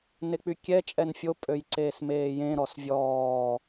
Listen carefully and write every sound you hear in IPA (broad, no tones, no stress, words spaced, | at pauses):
nek͡pykʲɛ t͡ʃʼɛnfʲo pʼøjǀeːsmeːjẽ ɾɔsvʲɔː